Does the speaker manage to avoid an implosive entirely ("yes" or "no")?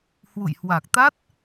yes